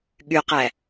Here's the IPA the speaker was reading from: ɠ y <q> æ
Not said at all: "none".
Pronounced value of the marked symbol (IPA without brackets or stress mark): q